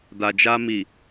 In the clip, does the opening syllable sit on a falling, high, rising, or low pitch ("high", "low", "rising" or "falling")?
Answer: low